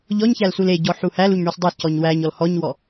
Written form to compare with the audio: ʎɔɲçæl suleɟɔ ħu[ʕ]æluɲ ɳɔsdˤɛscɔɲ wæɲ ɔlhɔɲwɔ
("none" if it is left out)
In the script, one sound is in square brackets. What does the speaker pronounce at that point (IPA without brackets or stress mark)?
h